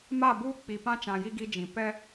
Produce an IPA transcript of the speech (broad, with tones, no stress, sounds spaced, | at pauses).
m a˦˨ b uː˦ k͡p i˨ p ã˦ t͡ʃ ã˨ j i˦ ɡ i˦ d͡ʒ ĩ˨ p ɛ˦